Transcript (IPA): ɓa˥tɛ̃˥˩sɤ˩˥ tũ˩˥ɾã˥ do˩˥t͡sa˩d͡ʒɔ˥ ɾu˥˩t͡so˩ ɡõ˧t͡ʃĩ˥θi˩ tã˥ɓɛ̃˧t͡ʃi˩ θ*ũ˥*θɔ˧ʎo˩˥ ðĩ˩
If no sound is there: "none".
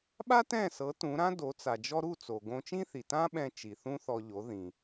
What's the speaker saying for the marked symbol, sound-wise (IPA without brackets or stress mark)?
ũ˥